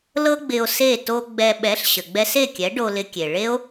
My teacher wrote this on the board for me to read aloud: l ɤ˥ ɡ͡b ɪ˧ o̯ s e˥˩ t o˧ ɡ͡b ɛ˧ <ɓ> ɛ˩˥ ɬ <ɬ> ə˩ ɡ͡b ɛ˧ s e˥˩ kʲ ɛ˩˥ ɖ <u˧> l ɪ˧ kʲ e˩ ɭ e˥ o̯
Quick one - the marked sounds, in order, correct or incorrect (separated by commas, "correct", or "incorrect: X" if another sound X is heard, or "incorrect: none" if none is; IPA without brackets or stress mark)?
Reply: correct, incorrect: ɕ, incorrect: o˧